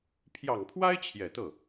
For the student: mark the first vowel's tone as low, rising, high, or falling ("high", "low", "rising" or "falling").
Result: low